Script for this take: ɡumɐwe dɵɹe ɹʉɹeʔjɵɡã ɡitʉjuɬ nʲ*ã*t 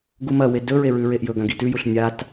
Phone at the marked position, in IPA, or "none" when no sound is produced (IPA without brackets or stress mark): a